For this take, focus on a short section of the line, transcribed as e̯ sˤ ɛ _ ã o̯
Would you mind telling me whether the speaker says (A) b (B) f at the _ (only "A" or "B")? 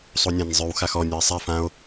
B